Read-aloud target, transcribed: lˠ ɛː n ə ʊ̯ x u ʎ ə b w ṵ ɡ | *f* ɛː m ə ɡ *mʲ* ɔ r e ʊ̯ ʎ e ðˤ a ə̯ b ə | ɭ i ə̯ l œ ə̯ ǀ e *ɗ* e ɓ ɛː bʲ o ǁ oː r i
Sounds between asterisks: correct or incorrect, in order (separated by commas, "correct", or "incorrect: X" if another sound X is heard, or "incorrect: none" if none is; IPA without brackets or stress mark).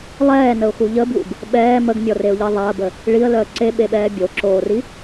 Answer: incorrect: ɓ, correct, incorrect: ɓ